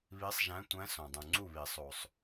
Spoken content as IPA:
βi˧˥sˤʒæ̃˧˥tʷæ̃˧˥ sõ˨ dˤũ˨ ŋ͡ǀu˥˨βi˨˩˦ sˤo˨sˤ

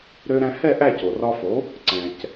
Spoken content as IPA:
ɾø˧ɾæ̃˧hɛ˥˩ ʔæ˥˩co˩rɒ˧fo˩˥ | ǀɛ̃˩c

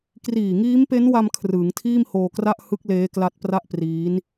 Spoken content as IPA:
kriː˨˩ŋiː˦˥mpe˦˥nwa˧m kʰrɯː˩˦ŋtʰiː˥˩mhoː˧kra˥˩ʔ hɯ˦˥k̚ leː˦˥kla˦˥t̚pra˥˩ʔpriː˦˥n

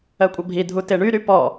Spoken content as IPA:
ɜkʷʼɐbʱi dʱuteɳyɾy pɔ

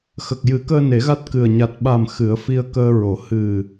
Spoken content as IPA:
xə˨˩k̚jɨ˨˩˦kəː˧ ne˨˩˦ɣa˦˥t̚ kɨ˨˩ə̯ ɲa˨˩t̚ɓa˨˩m xɨ˨˩˦ə̯fi˧ə̯ kəː˧ɹo˨˩˦ hɨ˨˩

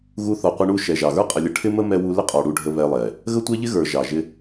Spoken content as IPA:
ɣu˧ θɔ˨qʷɪ˧ɳu˦˨ ʃɛ˨ʒɑ˨ɣə˞˦ qʼə˨lʲə˨ ʈʰɪ˦mə˦ mɛ˧wu˧ lɪ˦qʼɔ˨ ɽu˧ɖʱə˧ βɛ˧lˠɛ˨ | ɣə˦tʷɛ˦ʎɪ˦ ɣə˞˨ ʒɑ˨ ʒɪ˧

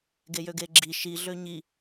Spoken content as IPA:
ɡejøɡeɡ͡ǁi ʃi ɮøɲi

